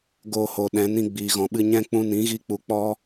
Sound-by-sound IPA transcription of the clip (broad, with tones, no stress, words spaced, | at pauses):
ɡoː˧ho˨ ɗɛ̃˨˦nĩ˦ ɡ͡biː˨ɣɔ̃˨ɓɨ˧ ɲɛ̃˦ k͡pũ˧nĩ˨˦ɣi˧k͡pu˨ k͡pɔ˦